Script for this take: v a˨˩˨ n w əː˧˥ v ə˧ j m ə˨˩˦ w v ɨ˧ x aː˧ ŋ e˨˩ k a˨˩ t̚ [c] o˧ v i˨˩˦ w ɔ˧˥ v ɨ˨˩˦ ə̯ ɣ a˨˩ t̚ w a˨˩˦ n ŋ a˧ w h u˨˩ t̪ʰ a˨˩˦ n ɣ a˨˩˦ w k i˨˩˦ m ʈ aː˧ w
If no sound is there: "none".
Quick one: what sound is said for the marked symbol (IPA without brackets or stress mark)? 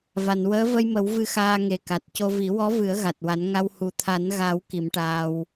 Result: c